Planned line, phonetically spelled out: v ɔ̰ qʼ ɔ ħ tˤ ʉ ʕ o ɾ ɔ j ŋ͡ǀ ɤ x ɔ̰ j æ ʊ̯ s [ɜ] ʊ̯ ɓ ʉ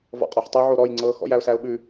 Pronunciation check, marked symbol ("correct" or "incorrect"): incorrect